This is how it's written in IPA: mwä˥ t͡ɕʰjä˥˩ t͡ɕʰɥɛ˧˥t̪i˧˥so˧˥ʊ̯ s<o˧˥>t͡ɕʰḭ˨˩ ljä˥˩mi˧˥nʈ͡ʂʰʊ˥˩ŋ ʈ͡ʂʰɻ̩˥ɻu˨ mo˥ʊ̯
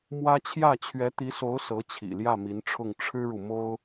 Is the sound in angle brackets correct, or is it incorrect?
incorrect